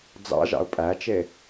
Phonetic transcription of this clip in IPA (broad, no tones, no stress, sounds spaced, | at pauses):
d͡z ɑ̰ ʒ ɑ̰ ʊ̯ pʼ æ t͡ʃ e